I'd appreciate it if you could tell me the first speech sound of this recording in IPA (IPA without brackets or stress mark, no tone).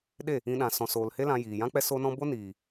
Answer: ɗ